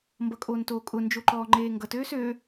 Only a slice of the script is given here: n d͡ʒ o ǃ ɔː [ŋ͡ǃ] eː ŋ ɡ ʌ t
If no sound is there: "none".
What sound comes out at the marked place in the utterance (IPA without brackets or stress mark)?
ŋ͡ǃ